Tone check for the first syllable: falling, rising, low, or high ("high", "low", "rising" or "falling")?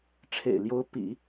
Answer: low